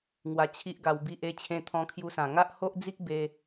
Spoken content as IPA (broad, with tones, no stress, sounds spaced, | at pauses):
ŋ w a˧ t͡ɕʰ i˦ ʔ ɡ a˧ w b i˦ ʔ e˦ t͡ɕʰ ẽ˧ t̪ʰ ɔ̃˧ kʰ j u˧ s ã˨˩ ŋ a˦ ʔ h o˦ ʔ d͡z i˦ k̚ b e˧